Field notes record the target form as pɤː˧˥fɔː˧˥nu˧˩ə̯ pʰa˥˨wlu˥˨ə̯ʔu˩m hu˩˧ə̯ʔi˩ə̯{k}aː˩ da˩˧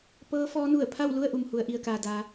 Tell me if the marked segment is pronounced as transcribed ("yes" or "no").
yes